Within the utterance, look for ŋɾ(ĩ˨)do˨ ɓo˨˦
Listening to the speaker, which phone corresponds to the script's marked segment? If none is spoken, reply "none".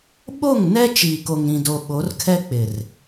ĩ˨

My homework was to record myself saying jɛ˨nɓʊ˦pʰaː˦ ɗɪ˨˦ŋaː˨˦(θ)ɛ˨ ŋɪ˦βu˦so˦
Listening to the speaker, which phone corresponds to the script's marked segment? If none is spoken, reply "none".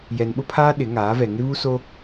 v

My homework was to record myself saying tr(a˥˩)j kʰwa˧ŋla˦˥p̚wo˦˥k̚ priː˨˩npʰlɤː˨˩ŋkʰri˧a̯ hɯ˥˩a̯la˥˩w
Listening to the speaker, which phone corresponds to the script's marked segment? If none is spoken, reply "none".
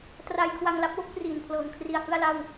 a˧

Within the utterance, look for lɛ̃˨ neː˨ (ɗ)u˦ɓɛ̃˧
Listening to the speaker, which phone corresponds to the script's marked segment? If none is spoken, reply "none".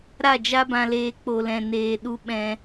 ɗ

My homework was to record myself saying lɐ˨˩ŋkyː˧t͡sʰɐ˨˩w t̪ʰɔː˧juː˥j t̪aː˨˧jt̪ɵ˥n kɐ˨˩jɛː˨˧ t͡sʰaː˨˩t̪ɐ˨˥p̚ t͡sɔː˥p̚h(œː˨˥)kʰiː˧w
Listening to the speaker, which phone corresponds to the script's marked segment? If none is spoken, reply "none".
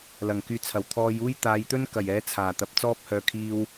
œː˨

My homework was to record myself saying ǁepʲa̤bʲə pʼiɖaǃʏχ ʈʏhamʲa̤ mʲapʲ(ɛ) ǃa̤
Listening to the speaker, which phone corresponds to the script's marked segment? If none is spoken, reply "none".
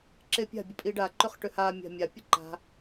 ə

